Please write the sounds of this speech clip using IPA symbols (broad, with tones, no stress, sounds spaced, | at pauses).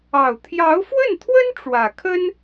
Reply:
ɑ˨˩ ʊ̯ t̪ʰ j ɑ˧˥ ʊ̯ f w ə˥˩ n t̪ʰ w ə˥ n ʈ͡ʂ w ä˨˩ kʰ ə˥ n